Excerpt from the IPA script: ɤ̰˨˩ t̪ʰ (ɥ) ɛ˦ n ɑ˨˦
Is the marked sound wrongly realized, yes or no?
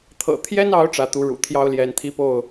yes